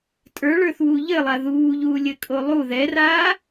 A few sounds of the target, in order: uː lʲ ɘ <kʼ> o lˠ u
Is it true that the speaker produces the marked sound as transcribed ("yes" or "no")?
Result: yes